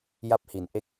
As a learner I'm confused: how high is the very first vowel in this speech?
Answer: low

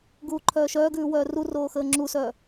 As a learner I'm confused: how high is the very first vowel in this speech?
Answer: high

